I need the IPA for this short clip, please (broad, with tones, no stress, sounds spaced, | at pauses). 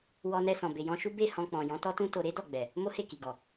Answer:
w ɔ˧ n ɛ˧ s ɔ̃˨ b e˨ j ɔ̃˧ ʃ u˦ b e˦˨ h ɔ̃˧ k͡p ɔ̃˨ j ɔ̃˨˦ t ɔ˦ t ũ˦ t o˧ ɾ e˦ d ɔ˦˨ ɡ͡b ɛ˨ | m o˦ h e˦˨ k i˨ ɡ ɔ˨